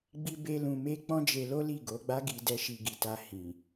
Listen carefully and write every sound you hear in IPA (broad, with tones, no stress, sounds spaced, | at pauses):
ɡ͡b i˦ b e˦ l ũ˧ m e˦ k͡p ɔ̃˦ d͡ʒ e˧ l o˦ l i˦˨ ɡ o˨˦ ɡ͡b a˦ ɡ i˧ d ɛ˦ ʃ i˧ ɡ i˨ t a˧ h ĩ˨